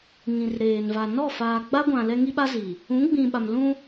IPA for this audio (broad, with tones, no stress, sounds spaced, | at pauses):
ŋ ĩ˨ r ɾ eː˨ n v a˨ n ɔ˦˨ f aː˨ ɡ͡b a˦ ɡʷ ã˨ l ɛ˦ ŋ i˦ ɓ a˦ z iː˨ | ũ˨˦ ɡ͡b ĩ˨ ɓ a˨ m l ũ˦